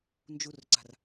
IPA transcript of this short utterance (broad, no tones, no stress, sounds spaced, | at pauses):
n d͡ʒ u r ǀ a̤ r